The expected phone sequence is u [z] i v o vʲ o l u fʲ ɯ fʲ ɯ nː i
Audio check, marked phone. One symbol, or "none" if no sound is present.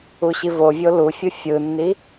ɕ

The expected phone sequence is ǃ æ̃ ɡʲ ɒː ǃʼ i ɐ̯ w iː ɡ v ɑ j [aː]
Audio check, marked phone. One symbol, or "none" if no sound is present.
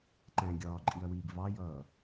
ʌː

